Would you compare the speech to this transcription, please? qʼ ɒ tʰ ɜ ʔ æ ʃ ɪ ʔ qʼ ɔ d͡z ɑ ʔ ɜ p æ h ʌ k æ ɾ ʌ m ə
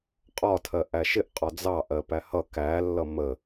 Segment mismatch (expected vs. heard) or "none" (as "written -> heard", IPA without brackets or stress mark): ɾ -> lː